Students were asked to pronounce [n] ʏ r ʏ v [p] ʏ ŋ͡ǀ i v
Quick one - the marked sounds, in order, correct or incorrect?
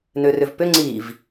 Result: correct, correct

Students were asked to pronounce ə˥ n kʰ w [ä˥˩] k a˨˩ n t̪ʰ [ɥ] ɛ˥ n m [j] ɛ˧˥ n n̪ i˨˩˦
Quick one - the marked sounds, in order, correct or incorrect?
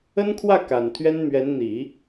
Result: correct, correct, incorrect: ɥ

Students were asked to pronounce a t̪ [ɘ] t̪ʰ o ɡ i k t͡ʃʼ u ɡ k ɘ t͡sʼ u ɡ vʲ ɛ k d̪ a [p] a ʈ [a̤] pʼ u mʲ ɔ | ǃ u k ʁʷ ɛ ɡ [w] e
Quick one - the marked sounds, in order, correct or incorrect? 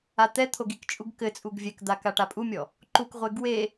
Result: incorrect: ɛ, incorrect: k, incorrect: a, correct

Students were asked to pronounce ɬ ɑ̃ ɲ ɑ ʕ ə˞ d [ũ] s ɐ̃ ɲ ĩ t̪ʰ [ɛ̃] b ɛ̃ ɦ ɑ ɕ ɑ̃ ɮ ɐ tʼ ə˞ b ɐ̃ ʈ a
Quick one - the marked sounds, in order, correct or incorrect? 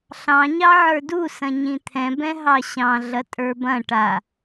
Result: incorrect: u, correct

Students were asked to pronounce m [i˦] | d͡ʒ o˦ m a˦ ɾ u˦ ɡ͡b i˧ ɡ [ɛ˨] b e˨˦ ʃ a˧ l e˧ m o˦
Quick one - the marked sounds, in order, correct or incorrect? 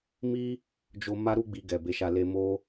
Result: correct, correct

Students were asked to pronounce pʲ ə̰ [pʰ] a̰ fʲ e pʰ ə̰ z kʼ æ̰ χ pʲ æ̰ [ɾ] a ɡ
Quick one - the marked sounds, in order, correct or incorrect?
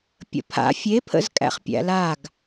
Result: correct, incorrect: l

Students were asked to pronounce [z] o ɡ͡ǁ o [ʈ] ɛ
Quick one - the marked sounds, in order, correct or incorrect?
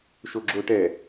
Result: incorrect: ʃ, correct

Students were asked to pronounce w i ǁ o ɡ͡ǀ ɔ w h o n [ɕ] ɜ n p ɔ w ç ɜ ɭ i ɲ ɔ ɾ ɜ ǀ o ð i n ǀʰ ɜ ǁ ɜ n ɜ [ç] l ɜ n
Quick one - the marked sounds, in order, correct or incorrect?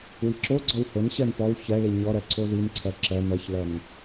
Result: correct, correct

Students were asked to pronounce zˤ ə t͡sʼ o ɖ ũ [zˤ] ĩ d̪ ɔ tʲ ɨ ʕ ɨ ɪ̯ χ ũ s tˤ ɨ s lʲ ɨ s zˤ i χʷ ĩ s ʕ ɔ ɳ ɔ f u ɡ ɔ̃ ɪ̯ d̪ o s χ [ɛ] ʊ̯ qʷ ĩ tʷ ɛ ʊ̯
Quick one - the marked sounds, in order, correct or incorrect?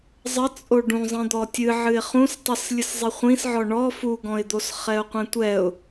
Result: correct, correct

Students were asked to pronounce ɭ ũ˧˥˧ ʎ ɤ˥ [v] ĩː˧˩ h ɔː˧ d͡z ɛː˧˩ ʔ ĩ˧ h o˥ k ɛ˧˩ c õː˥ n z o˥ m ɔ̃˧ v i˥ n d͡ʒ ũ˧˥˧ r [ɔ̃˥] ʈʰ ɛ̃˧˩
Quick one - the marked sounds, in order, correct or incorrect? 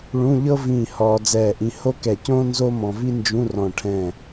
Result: correct, incorrect: ɔ̃˧˩

